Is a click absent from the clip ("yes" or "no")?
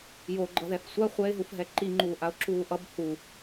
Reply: no